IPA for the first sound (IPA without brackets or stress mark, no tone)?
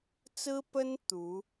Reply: t͡s